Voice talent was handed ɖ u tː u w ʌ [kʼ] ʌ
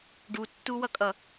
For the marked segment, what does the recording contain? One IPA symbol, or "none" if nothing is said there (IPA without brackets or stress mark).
kʼ